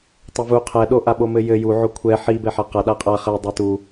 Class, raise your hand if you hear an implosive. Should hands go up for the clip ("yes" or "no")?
yes